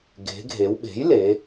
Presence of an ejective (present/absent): absent